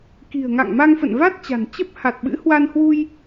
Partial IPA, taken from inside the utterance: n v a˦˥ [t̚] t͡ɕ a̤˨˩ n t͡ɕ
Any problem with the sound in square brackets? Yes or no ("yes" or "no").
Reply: no